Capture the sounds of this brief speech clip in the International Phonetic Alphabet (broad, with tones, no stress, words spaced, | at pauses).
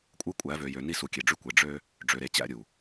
kʷʼɯ˦kʷʼæ˨˦vø˨ jø˨ni˦˨su˨ kʲe˨ɖ͡ʐy˦kʷe˨ ɖ͡ʐø˦ | ɖ͡ʐø˨ɾe˨t͡ɕæ̰˦ ɾʲu˨